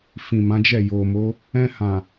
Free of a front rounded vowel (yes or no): yes